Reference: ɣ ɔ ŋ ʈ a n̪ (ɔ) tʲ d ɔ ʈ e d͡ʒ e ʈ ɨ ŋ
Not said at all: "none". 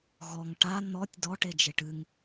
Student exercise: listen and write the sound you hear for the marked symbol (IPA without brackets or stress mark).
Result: ɔ